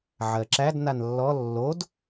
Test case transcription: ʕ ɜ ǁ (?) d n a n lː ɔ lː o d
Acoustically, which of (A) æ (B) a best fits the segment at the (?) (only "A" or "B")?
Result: A